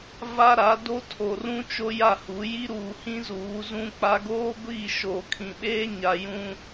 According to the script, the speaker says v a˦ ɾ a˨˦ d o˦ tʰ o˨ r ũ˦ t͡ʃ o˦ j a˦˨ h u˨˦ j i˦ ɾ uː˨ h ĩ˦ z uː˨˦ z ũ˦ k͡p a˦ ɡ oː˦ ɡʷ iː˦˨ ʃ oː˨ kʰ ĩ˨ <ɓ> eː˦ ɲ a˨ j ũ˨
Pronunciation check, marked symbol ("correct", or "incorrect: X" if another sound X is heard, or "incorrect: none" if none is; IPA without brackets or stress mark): correct